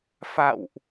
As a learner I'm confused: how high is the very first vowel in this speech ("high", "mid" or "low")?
low